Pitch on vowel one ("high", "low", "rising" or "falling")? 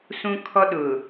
high